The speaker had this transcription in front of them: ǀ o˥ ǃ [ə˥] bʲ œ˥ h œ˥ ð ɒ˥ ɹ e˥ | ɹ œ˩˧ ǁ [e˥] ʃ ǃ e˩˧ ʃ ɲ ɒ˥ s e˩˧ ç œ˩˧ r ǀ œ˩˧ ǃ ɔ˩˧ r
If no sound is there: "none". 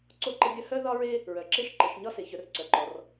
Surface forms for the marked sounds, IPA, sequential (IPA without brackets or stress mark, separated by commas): ə˥, e˥